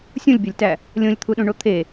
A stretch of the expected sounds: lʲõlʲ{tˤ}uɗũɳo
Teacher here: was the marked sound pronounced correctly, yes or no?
no